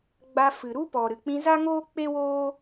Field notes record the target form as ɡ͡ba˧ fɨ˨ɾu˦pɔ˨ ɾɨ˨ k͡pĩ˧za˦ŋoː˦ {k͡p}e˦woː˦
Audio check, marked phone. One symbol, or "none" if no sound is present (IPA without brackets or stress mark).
k͡p